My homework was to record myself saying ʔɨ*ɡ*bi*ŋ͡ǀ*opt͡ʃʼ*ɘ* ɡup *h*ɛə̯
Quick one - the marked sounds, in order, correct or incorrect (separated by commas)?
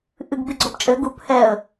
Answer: correct, incorrect, correct, correct